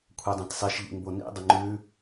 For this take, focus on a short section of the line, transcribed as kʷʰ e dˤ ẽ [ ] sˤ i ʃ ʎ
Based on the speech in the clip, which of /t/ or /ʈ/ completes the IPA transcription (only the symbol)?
t